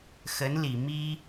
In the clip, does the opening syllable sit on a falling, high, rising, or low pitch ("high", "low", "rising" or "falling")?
rising